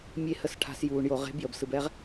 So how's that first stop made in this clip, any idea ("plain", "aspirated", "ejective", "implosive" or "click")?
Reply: aspirated